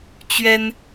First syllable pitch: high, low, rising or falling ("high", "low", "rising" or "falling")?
high